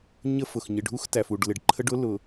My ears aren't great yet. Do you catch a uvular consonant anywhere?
no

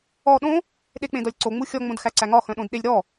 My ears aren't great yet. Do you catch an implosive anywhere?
yes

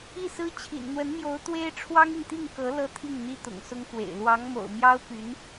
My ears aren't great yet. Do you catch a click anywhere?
no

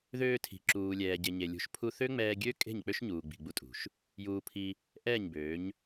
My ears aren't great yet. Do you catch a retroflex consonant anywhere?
no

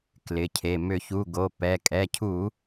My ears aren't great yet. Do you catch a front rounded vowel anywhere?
yes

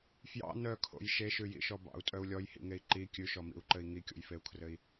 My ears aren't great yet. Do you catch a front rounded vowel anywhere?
yes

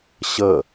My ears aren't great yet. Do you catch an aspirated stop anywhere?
no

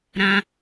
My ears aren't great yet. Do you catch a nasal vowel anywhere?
yes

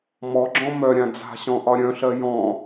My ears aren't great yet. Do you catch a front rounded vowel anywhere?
yes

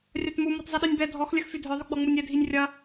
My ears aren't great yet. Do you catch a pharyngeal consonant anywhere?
no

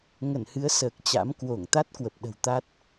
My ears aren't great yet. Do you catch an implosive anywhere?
yes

